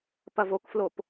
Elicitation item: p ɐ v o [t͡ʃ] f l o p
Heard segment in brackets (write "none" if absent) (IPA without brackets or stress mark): k